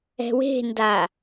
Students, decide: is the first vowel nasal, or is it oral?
oral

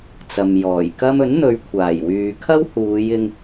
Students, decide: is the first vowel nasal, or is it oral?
oral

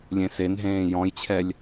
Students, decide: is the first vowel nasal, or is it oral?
nasal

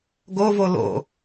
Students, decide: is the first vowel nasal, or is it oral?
oral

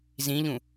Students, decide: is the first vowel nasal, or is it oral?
nasal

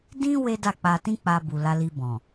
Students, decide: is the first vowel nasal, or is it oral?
nasal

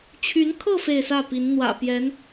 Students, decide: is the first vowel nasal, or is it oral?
oral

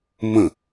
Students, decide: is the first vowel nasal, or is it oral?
nasal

